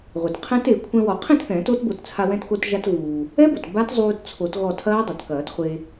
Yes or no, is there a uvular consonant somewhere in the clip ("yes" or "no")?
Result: yes